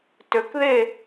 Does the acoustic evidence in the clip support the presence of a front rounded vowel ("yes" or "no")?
yes